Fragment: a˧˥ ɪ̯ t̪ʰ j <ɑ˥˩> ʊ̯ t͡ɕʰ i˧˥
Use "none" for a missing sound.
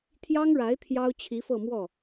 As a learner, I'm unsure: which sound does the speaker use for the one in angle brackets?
ɑ˥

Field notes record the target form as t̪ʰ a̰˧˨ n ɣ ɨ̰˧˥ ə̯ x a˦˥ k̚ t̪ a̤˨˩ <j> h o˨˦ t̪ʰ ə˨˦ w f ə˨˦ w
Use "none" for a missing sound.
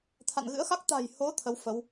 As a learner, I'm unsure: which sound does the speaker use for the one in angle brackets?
j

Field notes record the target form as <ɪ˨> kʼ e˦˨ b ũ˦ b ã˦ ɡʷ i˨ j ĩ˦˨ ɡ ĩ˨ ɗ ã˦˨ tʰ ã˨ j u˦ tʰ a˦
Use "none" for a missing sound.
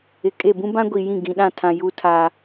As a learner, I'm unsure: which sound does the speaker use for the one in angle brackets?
ɪ˨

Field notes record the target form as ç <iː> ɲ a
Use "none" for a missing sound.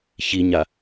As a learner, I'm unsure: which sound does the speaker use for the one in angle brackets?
i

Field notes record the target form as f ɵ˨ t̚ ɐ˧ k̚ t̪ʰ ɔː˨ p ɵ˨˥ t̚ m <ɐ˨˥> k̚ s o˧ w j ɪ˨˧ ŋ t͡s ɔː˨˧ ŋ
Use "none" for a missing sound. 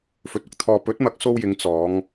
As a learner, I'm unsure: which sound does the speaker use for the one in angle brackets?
ɐ˨˥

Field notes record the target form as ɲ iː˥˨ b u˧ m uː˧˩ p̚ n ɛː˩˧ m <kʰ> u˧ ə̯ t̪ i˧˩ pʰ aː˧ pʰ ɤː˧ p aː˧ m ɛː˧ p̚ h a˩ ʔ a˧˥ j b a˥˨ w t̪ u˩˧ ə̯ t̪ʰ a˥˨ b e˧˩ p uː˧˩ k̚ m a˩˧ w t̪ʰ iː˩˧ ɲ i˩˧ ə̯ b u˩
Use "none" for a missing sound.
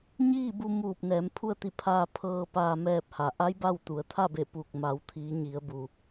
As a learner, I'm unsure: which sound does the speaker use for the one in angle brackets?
pʰ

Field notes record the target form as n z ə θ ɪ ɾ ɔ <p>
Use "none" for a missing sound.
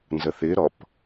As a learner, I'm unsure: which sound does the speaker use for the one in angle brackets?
p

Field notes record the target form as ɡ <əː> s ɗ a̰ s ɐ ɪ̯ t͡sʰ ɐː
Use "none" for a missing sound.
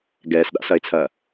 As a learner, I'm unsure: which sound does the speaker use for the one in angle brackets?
ɛː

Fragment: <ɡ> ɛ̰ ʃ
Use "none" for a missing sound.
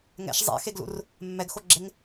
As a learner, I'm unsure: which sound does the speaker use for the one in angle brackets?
ŋ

